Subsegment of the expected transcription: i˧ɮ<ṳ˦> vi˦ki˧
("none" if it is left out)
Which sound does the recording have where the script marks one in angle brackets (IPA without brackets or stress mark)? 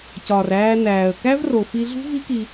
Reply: ṳ˦